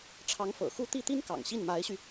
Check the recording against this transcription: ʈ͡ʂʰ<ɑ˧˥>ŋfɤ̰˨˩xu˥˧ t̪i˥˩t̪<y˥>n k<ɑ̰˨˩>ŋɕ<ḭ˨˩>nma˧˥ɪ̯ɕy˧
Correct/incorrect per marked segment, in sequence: correct, incorrect: i˥, correct, incorrect: i˥˩

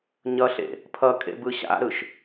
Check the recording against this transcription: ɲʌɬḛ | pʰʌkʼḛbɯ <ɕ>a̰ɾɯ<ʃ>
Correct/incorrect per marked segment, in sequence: correct, correct

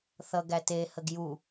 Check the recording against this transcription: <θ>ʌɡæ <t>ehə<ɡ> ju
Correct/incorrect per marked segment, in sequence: correct, correct, correct

